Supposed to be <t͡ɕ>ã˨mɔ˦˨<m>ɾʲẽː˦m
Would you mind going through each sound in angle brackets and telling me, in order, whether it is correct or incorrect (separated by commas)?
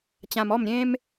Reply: correct, correct